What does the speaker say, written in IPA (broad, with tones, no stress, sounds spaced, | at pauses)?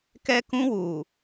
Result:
k ɛ˦ k ũ˦ w uː˨